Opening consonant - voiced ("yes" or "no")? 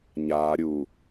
yes